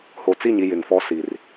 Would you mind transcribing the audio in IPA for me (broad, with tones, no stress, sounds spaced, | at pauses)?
h o˨ t͡s i˦˨ ɲ i˨ j ɪ˨ ŋ f ɔ˦ s i˨ r